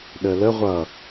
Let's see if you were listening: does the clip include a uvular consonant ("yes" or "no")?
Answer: yes